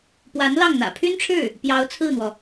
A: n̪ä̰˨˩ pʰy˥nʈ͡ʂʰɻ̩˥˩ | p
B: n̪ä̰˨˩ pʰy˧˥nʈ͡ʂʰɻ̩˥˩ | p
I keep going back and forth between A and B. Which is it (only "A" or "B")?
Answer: A